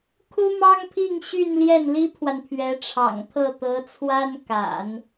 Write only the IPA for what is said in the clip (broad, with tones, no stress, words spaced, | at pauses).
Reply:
kʰu˥mɑ˥ŋpʰi˥˧ŋ ɕy˥˧nljɛ˥˩nli˥pʰwa˨n pʰɥɛ˧˥ʈ͡ʂʰɑ̰˨˩ŋt̪ʰɤ˥˩t̪ɤ˧˥ t͡sʰwa˥nka̰˨˩˦n